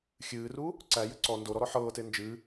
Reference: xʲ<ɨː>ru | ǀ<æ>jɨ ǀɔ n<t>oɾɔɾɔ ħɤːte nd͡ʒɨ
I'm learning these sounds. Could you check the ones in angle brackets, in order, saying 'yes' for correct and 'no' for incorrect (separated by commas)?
yes, yes, no